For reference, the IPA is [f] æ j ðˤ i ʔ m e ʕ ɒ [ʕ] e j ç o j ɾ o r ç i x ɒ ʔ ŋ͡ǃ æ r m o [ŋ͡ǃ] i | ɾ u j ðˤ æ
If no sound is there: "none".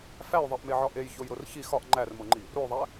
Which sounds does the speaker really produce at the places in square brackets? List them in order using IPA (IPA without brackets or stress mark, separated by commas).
f, ʔ, ŋ͡ǃ